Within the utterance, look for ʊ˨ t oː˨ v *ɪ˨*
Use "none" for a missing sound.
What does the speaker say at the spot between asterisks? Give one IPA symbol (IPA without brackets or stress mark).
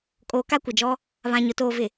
ɪ˨